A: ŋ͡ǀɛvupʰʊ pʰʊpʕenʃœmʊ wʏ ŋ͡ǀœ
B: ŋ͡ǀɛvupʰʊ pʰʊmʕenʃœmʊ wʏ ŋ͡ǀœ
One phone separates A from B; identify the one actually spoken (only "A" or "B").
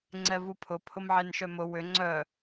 B